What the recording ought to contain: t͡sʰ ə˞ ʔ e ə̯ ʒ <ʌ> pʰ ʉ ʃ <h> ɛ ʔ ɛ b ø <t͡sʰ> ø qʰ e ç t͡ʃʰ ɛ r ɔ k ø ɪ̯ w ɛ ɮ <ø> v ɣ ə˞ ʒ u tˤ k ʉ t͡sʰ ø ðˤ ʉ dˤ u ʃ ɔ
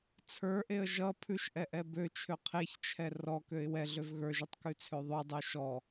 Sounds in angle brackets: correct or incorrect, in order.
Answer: correct, incorrect: ʔ, incorrect: t͡ʃʰ, correct

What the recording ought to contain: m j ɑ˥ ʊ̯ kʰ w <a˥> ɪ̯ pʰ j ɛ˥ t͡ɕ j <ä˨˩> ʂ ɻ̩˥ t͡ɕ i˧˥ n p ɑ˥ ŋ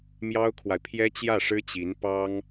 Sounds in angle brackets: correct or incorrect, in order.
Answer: incorrect: a˨, incorrect: ä˥˩

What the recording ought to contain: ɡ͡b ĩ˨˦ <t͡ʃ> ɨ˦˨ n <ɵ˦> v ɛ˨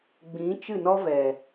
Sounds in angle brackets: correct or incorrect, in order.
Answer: correct, incorrect: ɔ˦

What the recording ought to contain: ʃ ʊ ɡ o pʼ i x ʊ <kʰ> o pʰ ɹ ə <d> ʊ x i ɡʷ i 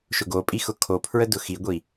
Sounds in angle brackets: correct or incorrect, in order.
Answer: correct, correct

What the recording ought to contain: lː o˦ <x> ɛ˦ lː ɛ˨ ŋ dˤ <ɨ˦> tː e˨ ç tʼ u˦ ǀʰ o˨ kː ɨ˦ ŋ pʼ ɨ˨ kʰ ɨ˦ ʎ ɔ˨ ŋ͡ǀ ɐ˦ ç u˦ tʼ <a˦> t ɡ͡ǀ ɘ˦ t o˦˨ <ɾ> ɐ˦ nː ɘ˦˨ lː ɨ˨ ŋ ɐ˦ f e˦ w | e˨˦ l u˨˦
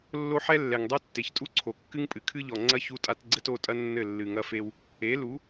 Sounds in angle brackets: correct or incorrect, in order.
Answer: incorrect: ħ, incorrect: ɛ˦, correct, incorrect: tʼ

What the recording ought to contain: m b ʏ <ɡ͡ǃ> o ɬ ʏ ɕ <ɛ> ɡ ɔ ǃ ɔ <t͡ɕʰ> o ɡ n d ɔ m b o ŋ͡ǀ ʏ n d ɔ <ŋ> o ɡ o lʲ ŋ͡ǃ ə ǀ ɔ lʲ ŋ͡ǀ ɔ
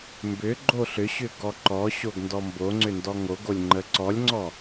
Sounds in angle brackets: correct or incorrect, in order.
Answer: correct, incorrect: ʏ, incorrect: ɕ, correct

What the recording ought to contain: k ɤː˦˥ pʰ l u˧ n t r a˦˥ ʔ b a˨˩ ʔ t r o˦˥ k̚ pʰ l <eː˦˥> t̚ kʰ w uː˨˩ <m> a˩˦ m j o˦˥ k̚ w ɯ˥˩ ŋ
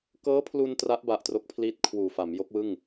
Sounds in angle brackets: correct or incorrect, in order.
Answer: incorrect: iː˦˥, incorrect: f

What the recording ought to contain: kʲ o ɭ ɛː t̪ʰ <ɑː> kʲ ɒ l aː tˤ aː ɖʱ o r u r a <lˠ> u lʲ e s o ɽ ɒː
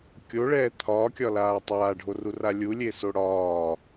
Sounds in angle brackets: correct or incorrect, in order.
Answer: incorrect: ɒː, incorrect: lʲ

